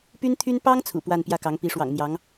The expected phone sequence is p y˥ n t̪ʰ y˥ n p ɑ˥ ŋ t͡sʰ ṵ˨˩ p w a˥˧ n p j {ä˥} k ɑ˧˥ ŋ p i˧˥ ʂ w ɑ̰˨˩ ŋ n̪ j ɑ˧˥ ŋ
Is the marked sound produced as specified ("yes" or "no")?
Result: no